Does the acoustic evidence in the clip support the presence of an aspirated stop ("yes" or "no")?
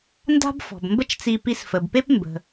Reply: no